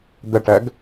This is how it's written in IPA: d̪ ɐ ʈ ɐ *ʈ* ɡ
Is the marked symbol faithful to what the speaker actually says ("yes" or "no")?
no